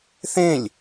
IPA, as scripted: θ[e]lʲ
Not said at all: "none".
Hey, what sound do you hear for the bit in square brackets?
ẽ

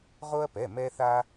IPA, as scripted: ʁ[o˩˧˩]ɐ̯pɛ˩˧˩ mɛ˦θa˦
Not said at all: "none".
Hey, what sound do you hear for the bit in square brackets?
o˦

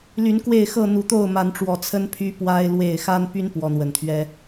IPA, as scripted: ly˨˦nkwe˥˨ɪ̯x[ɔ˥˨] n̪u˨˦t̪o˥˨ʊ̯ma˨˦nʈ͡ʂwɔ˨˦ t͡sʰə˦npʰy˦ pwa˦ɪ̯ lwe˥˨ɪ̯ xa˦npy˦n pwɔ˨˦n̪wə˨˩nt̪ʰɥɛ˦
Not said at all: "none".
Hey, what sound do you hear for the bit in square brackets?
ɤ˥˨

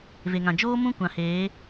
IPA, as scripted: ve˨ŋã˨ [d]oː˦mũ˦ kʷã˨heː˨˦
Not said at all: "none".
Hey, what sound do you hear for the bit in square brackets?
d͡ʒ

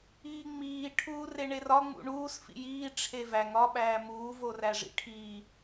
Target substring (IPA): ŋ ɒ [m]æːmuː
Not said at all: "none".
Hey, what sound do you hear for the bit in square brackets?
ɓ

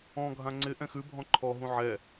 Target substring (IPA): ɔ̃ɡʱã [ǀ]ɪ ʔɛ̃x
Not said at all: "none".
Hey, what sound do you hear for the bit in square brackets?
ŋ͡ǀ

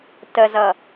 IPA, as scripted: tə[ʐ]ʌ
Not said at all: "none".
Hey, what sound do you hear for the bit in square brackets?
z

